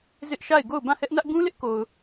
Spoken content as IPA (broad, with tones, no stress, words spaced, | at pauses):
zɪ˦ʔʃa˦˨ɪ̯ ɡo˦˨ʊ̯bã˦˨hɛ˦ʔnä˦ʔ ɡũ˦lɪ˦ʔko˨ʊ̯